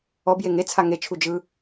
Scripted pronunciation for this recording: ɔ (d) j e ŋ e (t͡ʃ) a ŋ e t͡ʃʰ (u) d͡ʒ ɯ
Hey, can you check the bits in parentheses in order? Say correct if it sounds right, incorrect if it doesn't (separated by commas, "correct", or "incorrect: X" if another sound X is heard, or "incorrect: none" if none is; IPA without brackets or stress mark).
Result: incorrect: b, incorrect: t͡sʰ, correct